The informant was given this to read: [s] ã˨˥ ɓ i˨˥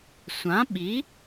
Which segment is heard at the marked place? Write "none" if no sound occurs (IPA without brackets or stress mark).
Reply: sʷ